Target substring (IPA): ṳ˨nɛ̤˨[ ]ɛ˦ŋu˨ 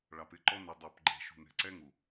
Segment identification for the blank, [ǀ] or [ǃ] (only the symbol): ǀ